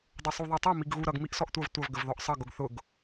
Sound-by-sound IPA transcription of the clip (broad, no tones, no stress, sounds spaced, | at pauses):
dˤ ʊ sˤ u ðˤ ɛ tˤ ʌ m i ɡ ɣ u ɾ ʌ ɡ m i ʔ s ɔ ʔ tʷ ʌ v tʷ ʌ v ɡ ə v ð ɔ ʔ sˤ ʌ ɡ ʊ ɡ θ ʊ ɡ